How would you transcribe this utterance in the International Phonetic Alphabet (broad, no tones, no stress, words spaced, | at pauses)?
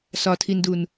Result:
sɒtʰindun